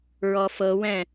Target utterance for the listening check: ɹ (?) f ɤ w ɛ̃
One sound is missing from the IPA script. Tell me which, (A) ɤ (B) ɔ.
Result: B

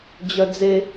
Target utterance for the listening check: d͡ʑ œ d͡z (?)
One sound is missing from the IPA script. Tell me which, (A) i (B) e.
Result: B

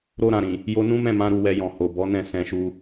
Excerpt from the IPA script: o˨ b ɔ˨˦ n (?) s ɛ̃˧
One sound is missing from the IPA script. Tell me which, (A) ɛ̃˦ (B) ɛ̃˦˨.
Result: B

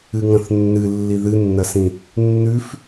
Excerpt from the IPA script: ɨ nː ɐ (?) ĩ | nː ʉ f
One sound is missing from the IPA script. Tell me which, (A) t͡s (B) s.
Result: B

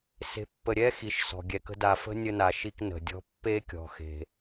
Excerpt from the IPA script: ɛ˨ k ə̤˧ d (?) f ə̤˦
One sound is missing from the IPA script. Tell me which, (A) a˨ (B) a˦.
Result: A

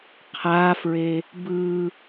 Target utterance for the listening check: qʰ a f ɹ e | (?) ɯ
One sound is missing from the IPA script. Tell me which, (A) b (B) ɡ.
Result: A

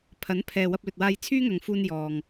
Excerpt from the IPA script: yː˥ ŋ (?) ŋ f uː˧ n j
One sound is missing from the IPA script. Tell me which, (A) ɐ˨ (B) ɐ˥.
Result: A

